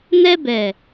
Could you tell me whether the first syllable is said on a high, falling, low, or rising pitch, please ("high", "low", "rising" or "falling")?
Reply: high